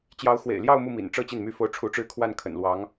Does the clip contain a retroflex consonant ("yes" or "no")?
yes